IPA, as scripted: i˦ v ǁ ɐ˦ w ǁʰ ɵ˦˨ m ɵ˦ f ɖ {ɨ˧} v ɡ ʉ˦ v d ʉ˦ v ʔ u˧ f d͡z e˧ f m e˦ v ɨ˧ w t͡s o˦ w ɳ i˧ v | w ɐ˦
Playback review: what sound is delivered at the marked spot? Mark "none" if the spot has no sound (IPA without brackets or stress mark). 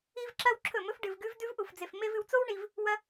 ɨ˧